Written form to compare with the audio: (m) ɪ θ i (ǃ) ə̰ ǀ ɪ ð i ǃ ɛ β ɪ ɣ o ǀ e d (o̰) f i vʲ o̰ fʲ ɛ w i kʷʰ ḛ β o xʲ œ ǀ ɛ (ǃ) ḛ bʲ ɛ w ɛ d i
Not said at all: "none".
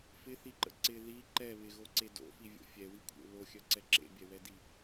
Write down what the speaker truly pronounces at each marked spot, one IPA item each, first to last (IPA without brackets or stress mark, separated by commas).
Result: f, ǃ, o̰, ǁ